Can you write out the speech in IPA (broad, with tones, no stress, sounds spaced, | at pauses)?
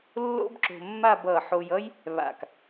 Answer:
lː o̰˥ b ǁ o̤˧ mː a˥˧ b ʌ˧˩ ħ o˧ j ʌ˥ j | β a̰˧˩ k